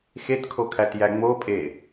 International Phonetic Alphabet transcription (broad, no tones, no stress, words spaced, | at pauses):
xetkʰokʰætjæ ŋ͡mopʼe